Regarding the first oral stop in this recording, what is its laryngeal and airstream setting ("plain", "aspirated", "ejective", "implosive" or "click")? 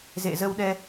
implosive